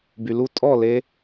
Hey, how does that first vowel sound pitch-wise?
low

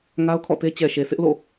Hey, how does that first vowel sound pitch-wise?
high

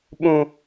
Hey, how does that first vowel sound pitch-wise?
high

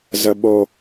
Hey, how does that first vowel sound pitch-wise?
high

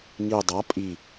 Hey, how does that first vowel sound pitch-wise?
low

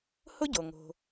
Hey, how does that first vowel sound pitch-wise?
high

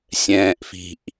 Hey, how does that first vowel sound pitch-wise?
low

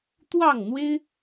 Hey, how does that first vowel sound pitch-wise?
falling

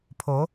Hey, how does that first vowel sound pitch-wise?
rising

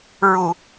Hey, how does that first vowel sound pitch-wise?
low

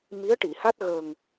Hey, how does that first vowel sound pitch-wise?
rising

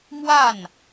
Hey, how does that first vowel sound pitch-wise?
falling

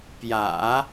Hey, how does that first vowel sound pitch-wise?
low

